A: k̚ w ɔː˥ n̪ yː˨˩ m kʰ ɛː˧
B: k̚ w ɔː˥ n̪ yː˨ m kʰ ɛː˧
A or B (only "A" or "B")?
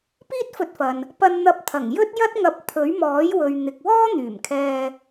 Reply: A